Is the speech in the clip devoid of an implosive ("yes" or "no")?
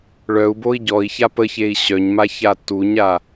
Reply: yes